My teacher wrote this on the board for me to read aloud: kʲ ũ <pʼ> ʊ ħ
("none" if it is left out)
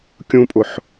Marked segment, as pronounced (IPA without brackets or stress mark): pʼ